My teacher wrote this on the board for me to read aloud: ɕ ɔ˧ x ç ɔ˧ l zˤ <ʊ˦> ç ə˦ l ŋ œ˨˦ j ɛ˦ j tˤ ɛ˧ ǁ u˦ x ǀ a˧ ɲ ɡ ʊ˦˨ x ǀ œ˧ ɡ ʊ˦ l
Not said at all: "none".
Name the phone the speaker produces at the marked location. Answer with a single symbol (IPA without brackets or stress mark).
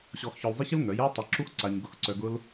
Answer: ə˦